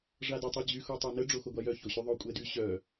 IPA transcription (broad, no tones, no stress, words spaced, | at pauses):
ʐadytˤɛd͡ʑy xotˤonə ɖ͡ʐoxoɡʷajœ çoɕyðˤo kʷʼɛdy ɕœ